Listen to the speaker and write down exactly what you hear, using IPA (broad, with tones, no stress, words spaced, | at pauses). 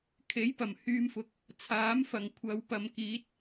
kʰe˨˥jpɐ˨˩mhyː˧mfʊ˨k̚ | t͡sʰaː˨˥mfɐ˨˩ŋkʷʰɐ˨wpɐ˨m kiː˨˥t̚